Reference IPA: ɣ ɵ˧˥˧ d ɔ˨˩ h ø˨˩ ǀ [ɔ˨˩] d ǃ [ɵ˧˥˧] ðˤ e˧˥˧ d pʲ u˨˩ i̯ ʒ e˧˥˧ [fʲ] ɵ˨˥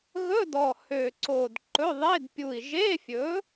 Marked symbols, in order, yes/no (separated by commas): no, yes, yes